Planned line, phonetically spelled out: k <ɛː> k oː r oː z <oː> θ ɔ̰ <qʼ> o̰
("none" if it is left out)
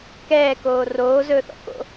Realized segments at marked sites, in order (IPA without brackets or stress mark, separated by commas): ɛː, ɵː, k